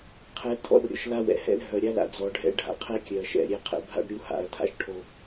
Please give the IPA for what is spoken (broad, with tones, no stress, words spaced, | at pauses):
qʰɛ˨˦tʰɔ̰˦rɾʲɔ̰˨ʃ la˦wɛ̰˨ hɛ̰˦l ɦœ˨ɾʲa˦la̰˨ d͡zɔ˨ɖʱɛ̰˦ ɖʱa̰˨qʰɛ˦kʲœ˨ɐ̯ʃɛ̰˨ ɾʲɛ˦qʰɛ̰˦bʱa̰˦ɖ ɾʲu˦ ha̰˨˦ɐ̯tʰa̰˦ʃʈʰo˦